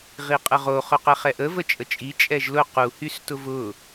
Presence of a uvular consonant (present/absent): present